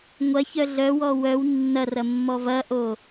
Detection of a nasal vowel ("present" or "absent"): absent